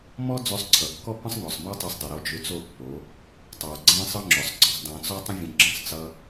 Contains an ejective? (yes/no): no